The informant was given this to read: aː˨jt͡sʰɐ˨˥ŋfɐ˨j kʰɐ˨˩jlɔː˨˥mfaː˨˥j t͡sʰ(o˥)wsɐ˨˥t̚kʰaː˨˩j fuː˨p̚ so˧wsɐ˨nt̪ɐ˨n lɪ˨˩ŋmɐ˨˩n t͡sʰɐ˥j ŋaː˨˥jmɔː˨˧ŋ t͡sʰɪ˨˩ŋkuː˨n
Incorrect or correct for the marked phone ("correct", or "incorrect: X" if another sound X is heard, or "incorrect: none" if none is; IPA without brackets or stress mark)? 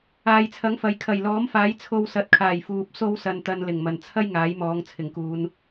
incorrect: o˧